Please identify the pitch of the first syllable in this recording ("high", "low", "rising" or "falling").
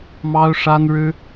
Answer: high